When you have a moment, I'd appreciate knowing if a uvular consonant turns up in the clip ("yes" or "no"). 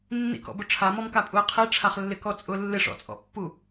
yes